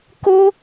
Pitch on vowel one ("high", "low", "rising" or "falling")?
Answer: high